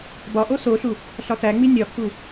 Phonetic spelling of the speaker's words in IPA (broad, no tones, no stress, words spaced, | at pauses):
bɒʔo soɬu | ɬɒtæŋ͡mi nʲɒkʰu